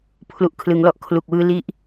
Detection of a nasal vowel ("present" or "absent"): absent